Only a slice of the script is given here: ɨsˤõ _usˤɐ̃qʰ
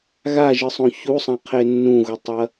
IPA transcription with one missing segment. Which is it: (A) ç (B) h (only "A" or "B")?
A